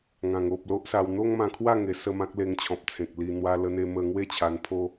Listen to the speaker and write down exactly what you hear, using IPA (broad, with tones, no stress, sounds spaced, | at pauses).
ŋ ã˨˩ ŋ o˨ p̚ l o˦ ʔ s a˧ w n̪ o˦ ŋ m ã˧ kʰ w a˥˧ ŋ e˨˩ s ə˥˧ m ã˦ k̚ l e˧ ŋ t͡ɕʰ ɔ̃˨ p̚ t͡sʰ ẽ˨ k̚ l i˧ n̪ w a˧ l ə˧ n̪ e˧ m ə˧ ŋ w e˥˧ t͡ɕʰ a˧ n pʰ o˦